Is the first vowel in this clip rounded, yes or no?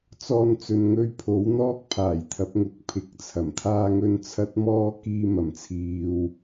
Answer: yes